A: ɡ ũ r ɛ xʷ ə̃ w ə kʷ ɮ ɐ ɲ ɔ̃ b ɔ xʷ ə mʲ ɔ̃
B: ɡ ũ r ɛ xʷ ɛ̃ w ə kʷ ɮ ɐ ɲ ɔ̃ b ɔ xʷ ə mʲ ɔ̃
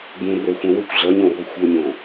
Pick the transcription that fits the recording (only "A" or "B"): B